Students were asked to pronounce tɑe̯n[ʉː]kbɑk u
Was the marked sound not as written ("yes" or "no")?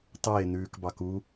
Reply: no